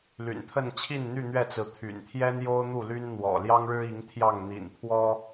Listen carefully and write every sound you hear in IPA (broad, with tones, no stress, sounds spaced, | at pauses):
l y̰˨˩ n t̪ʰ ə˥˨ n t͡ɕʰ i˥˨ n n̪ y˥˨ n̪ ɥ ɛ˥˨ t͡s ɹ̩˨˦ t̪ʰ y̰˨˩ n t̪ʰ j ɛ˦ n j o˦ ʊ̯ n̪ u˥˨ l y˦ n n̪ w ɔ̰˨˩ l j ɑ˦ ŋ ɻ ɻ̩˦ i˨˦ ŋ t̪ʰ j ɑ˥˨ ŋ n̪ ḭ˨˩ n pʰ w ɔ˦